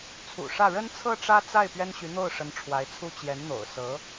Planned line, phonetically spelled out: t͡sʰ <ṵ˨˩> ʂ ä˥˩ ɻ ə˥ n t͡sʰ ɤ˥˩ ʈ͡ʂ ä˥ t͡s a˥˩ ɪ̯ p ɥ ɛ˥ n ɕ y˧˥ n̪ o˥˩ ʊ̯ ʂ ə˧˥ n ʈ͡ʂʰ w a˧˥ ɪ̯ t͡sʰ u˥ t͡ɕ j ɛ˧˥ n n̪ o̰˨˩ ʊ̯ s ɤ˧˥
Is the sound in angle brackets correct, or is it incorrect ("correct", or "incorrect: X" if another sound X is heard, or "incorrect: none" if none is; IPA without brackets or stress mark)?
correct